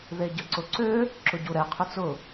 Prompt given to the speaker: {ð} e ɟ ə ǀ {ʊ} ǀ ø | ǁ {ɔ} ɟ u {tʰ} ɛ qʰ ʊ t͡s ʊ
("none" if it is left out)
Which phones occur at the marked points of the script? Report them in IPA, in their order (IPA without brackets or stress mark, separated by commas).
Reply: ð, ʊ, ʊ, ɾ